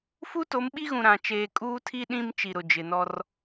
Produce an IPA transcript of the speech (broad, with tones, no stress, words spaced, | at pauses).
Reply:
fu˦to˨˦mɓi˦ɣũ˨ ɾã˨ t͡ʃeː˨kʼuː˦tʰi˦ ɗĩ˦m t͡ʃi˨ɾʊ˨d͡ʒɪ˨nɔ˦r